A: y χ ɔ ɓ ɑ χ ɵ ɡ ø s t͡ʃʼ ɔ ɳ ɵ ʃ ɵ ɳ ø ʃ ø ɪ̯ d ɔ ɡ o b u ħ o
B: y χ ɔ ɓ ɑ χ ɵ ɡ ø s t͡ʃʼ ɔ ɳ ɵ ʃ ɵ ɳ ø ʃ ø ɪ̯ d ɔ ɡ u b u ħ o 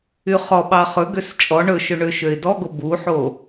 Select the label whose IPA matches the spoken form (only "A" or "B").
A